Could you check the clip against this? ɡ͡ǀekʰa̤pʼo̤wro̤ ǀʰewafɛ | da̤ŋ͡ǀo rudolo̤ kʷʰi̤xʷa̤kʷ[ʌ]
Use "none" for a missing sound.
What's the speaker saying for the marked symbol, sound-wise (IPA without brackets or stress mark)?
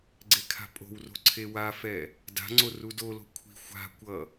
ʌ